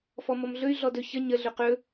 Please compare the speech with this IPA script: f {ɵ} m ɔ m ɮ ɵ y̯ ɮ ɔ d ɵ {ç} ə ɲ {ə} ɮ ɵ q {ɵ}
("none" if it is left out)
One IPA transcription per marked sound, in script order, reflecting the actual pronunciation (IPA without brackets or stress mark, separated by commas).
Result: ɔ, ç, ə, ɵ